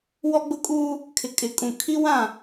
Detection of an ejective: present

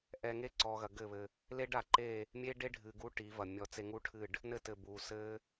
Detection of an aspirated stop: present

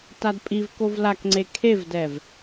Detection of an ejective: present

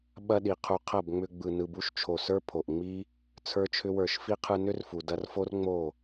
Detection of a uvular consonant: present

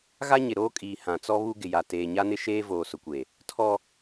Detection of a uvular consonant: absent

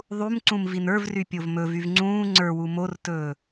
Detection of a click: present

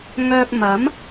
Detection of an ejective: absent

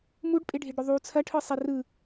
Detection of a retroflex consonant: present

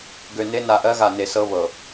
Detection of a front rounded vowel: present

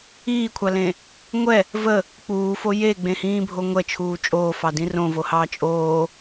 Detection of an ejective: present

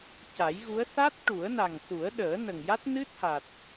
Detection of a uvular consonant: absent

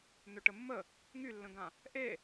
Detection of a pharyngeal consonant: absent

